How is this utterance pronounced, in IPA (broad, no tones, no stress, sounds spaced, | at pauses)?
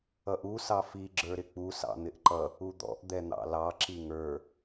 ʌ ʔ u s ɑ f i ɡ͡ǁ ə˞ ɾ ɪ k͡p u s ɑ̰ n̪ ɪ ʔ ǃ ʌ | u d̪ ɔ̰ ʔ d̪ ɛ n̪ ɑ̰ l ɑ ǁ i ŋ ə˞